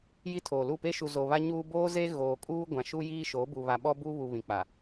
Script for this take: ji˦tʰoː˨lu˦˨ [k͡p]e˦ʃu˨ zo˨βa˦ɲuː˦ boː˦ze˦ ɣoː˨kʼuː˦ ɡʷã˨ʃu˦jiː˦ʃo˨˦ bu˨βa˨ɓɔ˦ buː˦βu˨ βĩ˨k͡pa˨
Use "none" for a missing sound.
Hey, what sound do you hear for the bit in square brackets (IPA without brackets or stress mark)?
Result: p